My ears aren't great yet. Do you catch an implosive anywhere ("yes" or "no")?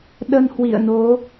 yes